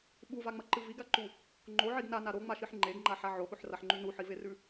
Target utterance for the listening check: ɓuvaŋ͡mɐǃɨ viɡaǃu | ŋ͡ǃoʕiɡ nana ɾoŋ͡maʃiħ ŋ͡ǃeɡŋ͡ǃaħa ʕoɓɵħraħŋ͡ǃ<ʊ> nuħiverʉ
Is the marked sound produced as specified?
no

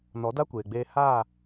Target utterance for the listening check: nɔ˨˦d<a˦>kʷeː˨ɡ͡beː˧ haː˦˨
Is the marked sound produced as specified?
yes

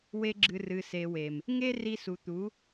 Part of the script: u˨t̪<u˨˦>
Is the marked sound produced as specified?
yes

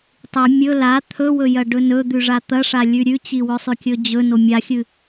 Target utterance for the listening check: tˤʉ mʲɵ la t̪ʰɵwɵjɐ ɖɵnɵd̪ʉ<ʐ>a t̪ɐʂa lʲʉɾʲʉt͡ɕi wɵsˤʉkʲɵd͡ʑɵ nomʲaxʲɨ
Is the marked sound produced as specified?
yes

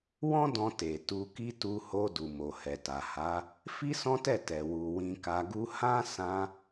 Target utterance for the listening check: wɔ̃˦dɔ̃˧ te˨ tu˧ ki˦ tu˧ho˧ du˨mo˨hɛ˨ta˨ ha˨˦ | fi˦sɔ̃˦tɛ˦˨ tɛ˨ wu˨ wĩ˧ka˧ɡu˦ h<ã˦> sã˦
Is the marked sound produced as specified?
yes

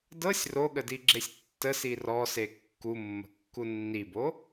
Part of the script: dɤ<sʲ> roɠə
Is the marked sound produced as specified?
yes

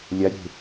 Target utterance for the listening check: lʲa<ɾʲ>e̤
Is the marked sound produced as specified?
yes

